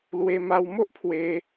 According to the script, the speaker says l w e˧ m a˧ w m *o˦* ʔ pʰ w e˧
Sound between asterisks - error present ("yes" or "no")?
no